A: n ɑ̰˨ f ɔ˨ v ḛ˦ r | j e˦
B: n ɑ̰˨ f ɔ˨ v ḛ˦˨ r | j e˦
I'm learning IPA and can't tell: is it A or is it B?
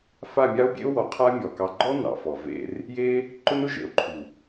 A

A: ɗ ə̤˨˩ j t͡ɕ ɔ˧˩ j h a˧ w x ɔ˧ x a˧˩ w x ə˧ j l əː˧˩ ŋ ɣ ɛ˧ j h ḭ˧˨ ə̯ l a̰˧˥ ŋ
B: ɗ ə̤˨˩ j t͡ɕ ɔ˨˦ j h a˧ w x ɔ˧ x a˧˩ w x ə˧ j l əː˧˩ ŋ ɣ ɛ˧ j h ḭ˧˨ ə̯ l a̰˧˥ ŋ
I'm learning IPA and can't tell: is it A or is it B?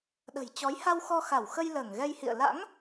B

